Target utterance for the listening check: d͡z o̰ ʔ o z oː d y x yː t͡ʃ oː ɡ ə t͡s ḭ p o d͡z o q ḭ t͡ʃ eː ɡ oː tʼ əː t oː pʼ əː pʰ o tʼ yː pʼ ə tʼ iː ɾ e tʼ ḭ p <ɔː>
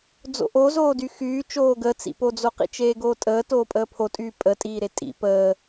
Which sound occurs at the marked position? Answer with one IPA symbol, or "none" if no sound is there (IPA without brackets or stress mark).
əː